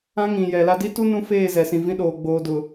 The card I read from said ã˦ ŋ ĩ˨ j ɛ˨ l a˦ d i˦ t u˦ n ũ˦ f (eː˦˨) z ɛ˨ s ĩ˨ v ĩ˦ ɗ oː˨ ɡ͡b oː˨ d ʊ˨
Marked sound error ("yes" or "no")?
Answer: no